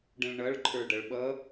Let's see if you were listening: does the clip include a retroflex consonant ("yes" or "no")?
yes